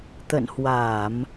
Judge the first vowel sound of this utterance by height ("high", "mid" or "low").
mid